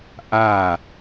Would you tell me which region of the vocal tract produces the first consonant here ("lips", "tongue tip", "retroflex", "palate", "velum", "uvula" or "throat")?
throat